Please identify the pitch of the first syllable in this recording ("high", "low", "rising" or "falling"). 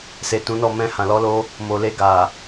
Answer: low